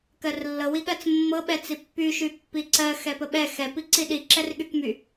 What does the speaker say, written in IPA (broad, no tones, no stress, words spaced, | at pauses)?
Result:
kɜrlːɤ wiɠɜt͡smːɤ ɓɛt͡sipːy ʃypːiǀɜ xɛpəɓɛ xɛ piǀiɗi ǁɛrɠykmy